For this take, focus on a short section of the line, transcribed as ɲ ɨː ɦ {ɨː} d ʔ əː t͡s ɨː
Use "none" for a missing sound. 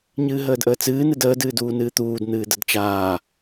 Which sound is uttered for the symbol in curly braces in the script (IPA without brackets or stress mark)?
əː